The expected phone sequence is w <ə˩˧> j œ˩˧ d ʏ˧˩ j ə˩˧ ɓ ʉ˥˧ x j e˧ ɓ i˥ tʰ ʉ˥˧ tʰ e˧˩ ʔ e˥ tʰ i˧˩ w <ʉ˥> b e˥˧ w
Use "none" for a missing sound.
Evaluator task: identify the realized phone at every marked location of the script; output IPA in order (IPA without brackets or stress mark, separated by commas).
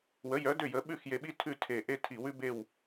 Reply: ə˩˧, ʉ˥